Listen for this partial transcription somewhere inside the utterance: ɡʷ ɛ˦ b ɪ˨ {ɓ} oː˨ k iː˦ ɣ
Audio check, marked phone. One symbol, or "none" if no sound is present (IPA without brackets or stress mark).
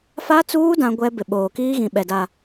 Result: ɓ